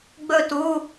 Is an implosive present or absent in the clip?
absent